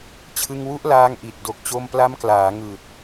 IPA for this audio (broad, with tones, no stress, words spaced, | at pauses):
t͡ɕʰɯ˧ŋwu˦˥ʔlaː˧ŋʔi˨˩t̚ do˨˩k̚t͡ɕo˧mpla˦˥mklaː˩˦ ŋɯː˨˩t̚